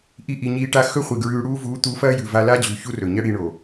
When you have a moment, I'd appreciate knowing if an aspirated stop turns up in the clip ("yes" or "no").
no